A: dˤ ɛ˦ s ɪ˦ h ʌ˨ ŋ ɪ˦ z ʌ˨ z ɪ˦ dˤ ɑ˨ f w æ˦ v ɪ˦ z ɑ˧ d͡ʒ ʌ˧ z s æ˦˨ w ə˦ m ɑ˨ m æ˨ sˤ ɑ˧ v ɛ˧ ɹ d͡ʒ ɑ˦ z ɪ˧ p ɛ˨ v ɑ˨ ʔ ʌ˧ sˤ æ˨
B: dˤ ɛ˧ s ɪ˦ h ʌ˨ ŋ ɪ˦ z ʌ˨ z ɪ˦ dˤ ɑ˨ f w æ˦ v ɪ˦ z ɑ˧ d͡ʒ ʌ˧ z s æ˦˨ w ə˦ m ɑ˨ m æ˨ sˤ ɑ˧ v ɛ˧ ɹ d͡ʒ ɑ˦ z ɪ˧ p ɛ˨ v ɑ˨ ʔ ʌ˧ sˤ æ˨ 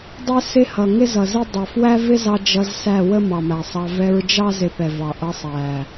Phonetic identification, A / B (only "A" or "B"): A